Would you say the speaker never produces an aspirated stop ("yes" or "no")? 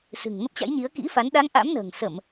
yes